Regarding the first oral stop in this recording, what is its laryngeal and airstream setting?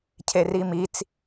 aspirated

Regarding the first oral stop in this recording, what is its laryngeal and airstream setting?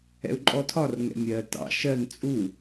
click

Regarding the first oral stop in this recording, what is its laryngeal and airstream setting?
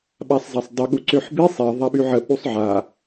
implosive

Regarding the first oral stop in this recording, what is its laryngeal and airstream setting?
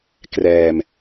plain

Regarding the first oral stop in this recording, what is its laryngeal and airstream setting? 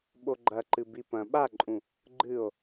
implosive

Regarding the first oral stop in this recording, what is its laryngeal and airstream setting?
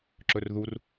click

